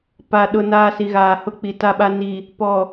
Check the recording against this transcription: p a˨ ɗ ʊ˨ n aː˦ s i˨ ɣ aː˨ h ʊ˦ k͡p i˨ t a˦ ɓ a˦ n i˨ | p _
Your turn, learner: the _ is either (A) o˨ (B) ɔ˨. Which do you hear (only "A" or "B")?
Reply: B